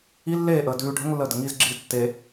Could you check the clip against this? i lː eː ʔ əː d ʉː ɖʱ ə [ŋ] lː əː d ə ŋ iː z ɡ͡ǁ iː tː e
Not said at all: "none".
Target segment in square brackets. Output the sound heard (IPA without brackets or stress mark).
ŋ